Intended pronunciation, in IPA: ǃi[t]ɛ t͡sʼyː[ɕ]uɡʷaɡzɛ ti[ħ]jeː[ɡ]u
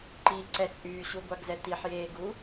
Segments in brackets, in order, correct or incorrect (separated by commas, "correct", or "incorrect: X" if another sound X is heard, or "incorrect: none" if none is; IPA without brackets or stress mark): incorrect: ǀ, correct, correct, correct